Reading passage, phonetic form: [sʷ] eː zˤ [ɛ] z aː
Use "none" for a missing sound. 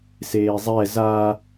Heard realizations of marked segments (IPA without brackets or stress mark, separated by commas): s, ɛ